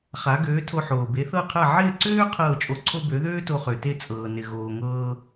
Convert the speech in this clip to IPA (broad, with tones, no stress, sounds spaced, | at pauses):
χ a˩˥ ɡ øː˩˥ tʰ o˧ ħ oː˩ b e˩˥ θ ɤ˥˩ qʰ a˥˩ ʕ ɪː˥˩ ǀ øː˥ qʰ ɤː˥˩ t͡ʃʼ o˧ ǀʰ o˥ b ø˩˥ ð øː˥ t o˧ χ ø˩ t e˥˩ t͡sʼ ɤː˩ n ɪ˩ ɣ oː˩ ŋ ɤː˧